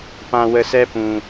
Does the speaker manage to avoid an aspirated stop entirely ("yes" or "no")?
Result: yes